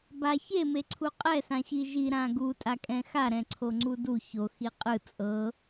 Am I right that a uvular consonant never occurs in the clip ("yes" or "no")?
no